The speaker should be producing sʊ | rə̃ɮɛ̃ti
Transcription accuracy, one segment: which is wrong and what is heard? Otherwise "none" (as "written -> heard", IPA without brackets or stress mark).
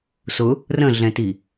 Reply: none